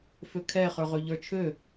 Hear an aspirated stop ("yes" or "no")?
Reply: yes